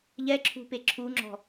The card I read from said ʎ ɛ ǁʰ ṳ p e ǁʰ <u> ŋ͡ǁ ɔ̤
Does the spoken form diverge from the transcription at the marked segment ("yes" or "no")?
no